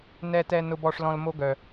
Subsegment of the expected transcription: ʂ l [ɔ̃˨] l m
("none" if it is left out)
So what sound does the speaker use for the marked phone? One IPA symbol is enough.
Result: ɔ̃˧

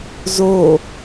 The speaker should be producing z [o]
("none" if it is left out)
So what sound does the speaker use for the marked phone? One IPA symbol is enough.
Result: o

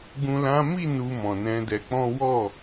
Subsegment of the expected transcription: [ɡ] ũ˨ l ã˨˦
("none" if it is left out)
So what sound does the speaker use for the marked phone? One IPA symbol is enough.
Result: ɡ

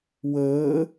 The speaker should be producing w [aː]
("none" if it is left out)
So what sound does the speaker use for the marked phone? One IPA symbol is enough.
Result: əː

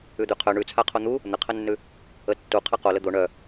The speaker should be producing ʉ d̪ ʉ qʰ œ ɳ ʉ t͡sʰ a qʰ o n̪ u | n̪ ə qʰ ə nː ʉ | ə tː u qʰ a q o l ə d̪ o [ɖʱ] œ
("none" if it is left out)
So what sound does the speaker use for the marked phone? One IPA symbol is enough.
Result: ɳ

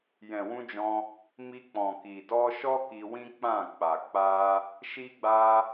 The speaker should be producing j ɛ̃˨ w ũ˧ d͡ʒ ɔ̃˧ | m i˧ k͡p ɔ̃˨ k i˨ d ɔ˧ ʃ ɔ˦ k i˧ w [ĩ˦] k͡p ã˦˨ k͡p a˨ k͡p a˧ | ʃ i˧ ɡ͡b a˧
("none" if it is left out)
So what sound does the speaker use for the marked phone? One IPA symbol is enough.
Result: ĩ˦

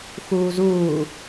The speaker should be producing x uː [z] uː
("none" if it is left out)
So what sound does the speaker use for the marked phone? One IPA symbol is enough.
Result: z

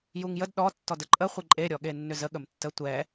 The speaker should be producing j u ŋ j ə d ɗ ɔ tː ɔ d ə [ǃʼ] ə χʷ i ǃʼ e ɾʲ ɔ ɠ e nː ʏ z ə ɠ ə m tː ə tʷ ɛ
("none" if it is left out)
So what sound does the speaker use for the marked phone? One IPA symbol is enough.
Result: ǃʼ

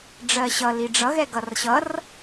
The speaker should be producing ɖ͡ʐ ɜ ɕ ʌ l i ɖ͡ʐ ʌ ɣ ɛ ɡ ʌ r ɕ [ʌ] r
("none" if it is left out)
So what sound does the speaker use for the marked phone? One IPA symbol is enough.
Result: ʌ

